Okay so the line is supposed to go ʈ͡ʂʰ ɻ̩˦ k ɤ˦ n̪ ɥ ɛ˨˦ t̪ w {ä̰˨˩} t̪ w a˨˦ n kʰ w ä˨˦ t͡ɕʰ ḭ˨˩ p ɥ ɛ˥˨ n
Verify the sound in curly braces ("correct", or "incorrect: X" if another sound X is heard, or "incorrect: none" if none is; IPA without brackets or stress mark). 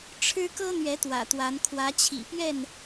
correct